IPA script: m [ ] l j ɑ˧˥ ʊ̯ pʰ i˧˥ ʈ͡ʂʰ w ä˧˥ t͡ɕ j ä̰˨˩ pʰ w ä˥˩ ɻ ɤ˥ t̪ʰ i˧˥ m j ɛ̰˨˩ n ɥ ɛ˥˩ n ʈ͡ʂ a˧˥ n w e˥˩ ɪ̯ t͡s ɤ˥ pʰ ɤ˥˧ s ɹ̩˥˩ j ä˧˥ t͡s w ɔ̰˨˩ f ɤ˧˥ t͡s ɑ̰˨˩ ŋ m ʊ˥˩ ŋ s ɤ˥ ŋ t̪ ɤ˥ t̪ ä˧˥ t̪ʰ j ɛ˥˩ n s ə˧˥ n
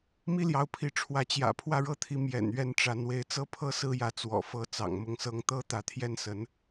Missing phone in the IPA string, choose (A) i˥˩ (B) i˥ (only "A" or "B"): B